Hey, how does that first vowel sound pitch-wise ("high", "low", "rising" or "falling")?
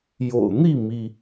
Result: low